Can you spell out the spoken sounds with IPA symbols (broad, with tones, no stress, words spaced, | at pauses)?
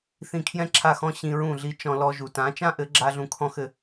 θĩ˧kʰjɛ̃˦ǁʰa˦˨xɔ̃˦ ɕĩ˧ɹũ˦˨ ɮi˧t͡ʃɔ̃˧ lɔ˧ʒu˨ tã˨˦t͡ʃã˦ʔɘ˨˦ɡ͡ǁa˧ ɮũ˧kʰɔ̃˦xɘ˧